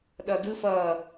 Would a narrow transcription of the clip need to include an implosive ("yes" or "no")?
yes